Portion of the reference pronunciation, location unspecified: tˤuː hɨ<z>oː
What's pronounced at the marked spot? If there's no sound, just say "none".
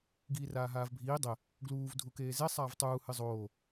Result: zˤ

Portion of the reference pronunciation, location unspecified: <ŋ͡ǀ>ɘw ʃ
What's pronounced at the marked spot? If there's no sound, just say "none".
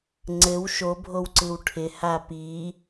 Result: ŋ͡ǀ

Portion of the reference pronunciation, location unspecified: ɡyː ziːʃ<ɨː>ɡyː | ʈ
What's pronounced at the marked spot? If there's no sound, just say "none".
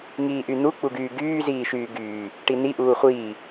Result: yː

